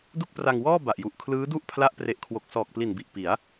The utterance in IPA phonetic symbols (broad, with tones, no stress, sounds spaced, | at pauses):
d u˥˩ k̚ p r a˧ ŋ w ɔː˥˩ b a˨˩ ʔ j u˨˩ ʔ kʰ l ɯː˦˥ d u˥˩ ʔ pʰ l a˦˥ ʔ p r e˨˩ ʔ kʰ w o˨˩ k̚ s ɔː˨˩ k̚ p l i˨˩ n b i˨˩ ʔ p i˩˦ a̯